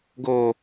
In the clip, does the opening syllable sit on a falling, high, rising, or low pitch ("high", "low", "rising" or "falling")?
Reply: high